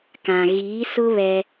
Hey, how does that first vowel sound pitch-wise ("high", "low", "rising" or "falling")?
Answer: low